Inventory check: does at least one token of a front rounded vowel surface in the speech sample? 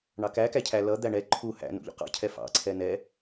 no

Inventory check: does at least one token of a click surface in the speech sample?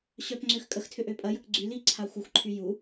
yes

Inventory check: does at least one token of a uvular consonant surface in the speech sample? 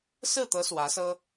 no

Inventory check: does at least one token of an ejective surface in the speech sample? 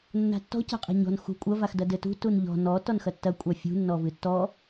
yes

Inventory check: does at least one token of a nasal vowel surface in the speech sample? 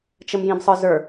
yes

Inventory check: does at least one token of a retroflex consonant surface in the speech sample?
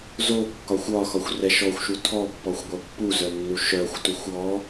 no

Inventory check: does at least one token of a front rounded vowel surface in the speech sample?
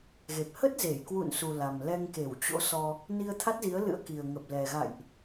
no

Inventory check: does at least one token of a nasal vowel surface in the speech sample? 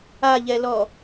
no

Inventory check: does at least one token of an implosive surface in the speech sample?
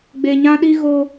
yes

